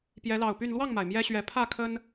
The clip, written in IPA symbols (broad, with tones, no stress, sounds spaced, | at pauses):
p j ɛ˨˦ l ɑ˨˩ ʊ̯ p y˥˨ n l w ɑ˥˨ ŋ m a˩ ɪ̯ m j ɛ˦ ɕ ɥ ɛ˨˦ pʰ ä˥˨ kʰ ə˦ n